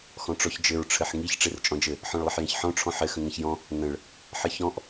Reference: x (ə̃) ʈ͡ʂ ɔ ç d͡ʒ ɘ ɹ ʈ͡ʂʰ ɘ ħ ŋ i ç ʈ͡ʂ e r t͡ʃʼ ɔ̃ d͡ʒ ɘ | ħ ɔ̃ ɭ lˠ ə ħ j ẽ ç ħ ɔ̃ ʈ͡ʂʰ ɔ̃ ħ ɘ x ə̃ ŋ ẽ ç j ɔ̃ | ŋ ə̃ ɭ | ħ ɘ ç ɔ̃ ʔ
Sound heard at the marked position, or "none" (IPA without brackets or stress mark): ɔ̃